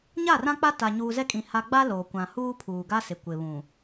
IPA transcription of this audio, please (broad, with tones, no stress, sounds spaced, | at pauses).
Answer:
ɲ a˦˨ r ã˦ k͡p a˦ t a˨ ɲ uː˨ z ɛ˦ kʼ ĩ˨ h a˨ ɡ͡b a˦ l oː˨ kʷ ã˨ h uː˦ pʰ uː˨ ɡ a˦ s ɪ˨ kʷ ɪ˨ β ũ˨